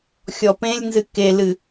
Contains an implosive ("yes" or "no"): no